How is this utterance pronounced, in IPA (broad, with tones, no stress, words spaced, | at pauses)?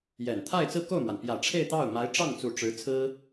jɛ˨˩n t̪ʰa˥˧ɪ̯t͡sɹ̩˥˧ko˥˩ʊ̯mwa˩n pjä˨˩ʈ͡ʂʰe˥˧ɪ̯ t̪ɑ˥˩ʊ̯ ma˧˥ɪ̯ʈ͡ʂɑ˥˩ŋt͡su˨˩ ʈ͡ʂɻ̩˧˥ t͡sʰɹ̩˥